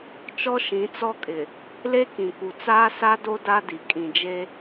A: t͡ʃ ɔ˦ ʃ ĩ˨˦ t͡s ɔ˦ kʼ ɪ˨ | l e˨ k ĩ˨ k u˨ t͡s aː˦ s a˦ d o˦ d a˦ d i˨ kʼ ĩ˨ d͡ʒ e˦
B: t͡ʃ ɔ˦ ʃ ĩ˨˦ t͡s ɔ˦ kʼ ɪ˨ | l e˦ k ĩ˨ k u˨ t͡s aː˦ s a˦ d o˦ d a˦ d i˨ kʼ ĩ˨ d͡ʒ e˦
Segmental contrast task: B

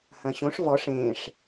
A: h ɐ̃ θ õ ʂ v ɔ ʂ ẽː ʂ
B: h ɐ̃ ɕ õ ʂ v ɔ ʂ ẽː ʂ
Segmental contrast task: B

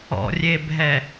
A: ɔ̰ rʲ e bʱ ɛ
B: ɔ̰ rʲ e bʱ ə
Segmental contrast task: A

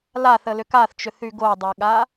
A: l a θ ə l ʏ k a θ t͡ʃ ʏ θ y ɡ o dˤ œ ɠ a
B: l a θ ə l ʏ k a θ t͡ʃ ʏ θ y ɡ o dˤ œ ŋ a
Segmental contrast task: A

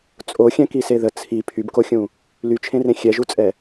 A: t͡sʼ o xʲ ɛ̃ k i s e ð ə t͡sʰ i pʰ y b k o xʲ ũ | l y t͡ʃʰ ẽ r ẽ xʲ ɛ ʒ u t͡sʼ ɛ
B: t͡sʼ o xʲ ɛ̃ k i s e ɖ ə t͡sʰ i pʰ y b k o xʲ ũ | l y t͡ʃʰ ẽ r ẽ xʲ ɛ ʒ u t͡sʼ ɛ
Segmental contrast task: A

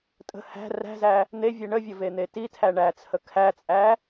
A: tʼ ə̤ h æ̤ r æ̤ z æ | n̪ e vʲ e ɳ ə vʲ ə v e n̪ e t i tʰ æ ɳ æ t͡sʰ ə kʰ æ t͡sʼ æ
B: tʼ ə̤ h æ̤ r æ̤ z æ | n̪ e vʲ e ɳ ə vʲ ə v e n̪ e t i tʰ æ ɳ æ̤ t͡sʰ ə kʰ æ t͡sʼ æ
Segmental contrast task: A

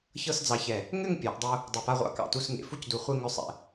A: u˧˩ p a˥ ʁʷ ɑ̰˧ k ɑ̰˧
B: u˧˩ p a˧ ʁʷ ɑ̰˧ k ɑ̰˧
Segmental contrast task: A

